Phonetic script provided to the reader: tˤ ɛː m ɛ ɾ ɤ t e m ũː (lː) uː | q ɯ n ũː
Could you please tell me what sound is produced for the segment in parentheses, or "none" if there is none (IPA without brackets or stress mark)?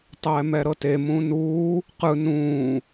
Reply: n